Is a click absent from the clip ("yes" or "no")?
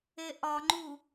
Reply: no